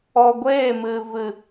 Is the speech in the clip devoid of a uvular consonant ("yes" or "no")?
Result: yes